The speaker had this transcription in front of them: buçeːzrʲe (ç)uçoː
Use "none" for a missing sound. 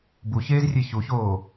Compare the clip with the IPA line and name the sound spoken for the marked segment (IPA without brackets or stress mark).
ç